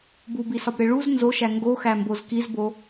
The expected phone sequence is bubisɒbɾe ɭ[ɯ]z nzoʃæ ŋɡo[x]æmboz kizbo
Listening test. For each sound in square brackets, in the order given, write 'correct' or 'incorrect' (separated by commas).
incorrect, correct